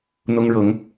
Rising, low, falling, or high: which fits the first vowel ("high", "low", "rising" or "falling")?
high